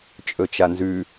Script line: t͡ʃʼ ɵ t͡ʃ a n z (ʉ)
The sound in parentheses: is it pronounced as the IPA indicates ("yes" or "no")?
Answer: yes